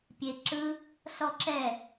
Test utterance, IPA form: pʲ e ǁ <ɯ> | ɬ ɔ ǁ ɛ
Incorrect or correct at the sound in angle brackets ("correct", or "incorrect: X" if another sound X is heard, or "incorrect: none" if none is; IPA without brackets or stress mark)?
correct